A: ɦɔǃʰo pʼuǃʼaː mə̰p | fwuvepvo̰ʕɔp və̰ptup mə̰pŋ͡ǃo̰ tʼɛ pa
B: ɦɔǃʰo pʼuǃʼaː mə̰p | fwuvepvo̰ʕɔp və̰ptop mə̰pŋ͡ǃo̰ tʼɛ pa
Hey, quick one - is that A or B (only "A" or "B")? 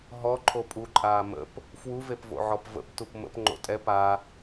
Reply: A